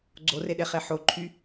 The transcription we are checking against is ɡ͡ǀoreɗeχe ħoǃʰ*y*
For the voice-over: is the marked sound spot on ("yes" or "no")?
yes